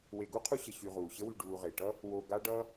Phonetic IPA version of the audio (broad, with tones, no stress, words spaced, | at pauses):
we˨ɡu˥ qʰu˦ɕə˨ ɕy˨ʁuː˩ɕə˦wy˨ ɖuː˨ʁe˩ʈʌ˥ | wo˨ ɡa˦ ɖʌː˦